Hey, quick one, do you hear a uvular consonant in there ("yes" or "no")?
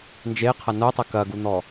yes